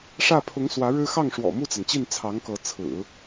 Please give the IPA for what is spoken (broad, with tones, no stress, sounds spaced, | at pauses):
ʂ ä˥˩ pʰ ʊ˧˥ ŋ s w ä˧˥ ɻ ɻ̩˥ x ɑ˥˩ ŋ ʂ w ɔ̰˨˩ m u˥˩ t͡s a˩ n t͡ɕ i˥˩ n t͡sʰ ɑ˧˥ ŋ k ɤ˧˥ t͡sʰ ɹ̩˨˩˦